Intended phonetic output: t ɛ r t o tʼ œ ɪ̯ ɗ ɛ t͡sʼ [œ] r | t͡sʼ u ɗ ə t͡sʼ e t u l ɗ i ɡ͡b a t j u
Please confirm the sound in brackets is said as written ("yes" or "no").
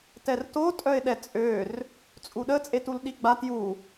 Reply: no